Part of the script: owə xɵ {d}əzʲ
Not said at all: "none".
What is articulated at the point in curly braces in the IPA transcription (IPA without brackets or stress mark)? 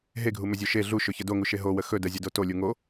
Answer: d